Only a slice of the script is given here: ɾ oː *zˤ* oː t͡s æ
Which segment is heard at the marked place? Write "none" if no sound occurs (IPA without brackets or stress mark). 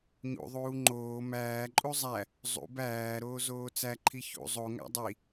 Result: z